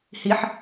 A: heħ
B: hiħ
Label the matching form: B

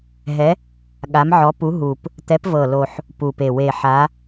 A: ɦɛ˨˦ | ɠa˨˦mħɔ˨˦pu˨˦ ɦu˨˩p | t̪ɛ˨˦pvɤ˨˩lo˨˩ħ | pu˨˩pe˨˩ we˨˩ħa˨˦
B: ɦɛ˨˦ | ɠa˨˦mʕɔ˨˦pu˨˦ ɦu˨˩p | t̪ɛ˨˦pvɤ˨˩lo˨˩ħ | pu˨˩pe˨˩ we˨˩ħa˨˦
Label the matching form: B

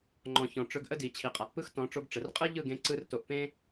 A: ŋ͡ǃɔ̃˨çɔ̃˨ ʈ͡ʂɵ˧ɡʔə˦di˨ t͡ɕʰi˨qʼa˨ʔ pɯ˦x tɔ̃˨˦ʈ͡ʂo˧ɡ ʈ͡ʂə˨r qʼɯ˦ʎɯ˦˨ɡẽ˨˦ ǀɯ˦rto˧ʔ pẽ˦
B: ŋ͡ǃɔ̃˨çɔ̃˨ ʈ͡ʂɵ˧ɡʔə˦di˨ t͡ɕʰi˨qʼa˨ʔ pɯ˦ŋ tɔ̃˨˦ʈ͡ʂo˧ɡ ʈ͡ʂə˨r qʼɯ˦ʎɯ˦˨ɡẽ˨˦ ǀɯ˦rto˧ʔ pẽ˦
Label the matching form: A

